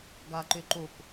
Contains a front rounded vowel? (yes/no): yes